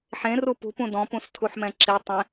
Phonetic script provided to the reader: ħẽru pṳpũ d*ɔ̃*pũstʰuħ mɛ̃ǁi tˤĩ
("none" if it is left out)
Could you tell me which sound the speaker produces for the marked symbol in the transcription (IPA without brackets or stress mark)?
ɔ̃